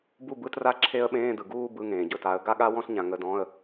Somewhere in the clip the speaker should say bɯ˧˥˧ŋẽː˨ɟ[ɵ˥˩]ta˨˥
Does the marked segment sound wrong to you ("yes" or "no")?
no